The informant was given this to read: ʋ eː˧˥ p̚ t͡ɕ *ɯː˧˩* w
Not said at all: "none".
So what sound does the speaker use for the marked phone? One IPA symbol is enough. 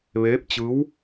ɯː˧˥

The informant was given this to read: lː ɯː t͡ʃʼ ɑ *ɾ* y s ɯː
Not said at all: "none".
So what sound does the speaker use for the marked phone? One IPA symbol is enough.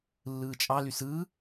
l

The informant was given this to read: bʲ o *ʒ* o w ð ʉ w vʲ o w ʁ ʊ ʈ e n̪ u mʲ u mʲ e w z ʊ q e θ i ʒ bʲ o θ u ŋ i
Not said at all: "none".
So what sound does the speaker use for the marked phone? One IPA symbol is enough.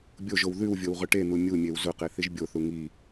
ʒ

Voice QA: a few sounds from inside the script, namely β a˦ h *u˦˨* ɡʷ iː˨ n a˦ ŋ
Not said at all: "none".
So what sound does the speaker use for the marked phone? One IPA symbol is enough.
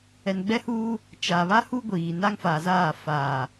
u˦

